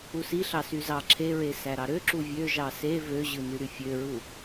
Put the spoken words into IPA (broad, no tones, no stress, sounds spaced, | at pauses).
u s i ɬ ɑ s y z ɑ ǁʰ e ɹ e s æ ɾ ɑ ɾ ø ǁ u vʲ ø ʒ ɑ s e v ø ʑ ɯ n y ɾ y fʲ ø ɹ u